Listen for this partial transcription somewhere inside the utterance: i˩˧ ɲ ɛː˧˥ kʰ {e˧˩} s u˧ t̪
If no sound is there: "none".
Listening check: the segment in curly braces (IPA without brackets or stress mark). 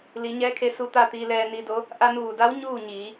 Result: e˧˥